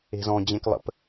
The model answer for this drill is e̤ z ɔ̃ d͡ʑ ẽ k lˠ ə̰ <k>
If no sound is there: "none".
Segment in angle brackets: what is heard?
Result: p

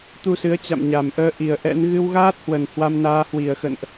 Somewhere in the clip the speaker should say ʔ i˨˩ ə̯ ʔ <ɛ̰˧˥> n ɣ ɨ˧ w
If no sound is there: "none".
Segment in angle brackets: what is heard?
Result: ɛ̰˧˥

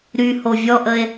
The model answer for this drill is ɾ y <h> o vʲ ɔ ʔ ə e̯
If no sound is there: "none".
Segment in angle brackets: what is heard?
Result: h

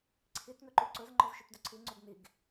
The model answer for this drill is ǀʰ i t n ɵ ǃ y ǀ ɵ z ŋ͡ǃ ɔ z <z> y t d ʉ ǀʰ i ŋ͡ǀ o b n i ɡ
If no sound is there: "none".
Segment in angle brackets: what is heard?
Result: ʃ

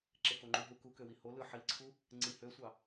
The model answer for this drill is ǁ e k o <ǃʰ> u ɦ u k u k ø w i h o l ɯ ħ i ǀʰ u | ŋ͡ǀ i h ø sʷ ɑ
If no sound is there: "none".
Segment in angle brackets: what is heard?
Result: ŋ͡ǃ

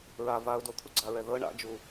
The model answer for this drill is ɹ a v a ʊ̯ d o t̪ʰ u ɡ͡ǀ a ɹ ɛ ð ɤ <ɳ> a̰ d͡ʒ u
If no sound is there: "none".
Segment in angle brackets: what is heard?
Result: ɳ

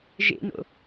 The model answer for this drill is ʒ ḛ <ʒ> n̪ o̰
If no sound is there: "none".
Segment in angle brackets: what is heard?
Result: none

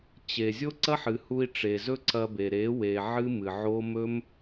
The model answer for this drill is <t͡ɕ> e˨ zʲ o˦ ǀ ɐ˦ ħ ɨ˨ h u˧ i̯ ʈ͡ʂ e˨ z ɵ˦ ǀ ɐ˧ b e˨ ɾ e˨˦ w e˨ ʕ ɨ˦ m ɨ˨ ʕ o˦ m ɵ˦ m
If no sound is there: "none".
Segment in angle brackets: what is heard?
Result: t͡ɕ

